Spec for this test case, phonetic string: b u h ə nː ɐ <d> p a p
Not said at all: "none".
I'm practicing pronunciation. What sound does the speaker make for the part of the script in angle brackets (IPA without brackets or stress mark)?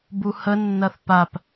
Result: θ